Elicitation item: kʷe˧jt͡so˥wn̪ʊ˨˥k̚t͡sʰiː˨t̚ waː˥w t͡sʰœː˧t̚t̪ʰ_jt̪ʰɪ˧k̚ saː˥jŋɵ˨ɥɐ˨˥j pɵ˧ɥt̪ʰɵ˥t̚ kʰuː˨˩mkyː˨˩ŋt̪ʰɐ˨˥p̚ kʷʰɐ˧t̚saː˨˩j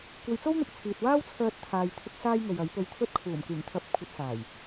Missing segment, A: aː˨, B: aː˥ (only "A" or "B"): A